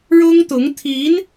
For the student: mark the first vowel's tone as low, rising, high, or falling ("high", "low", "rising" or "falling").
high